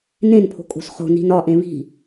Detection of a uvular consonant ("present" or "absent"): present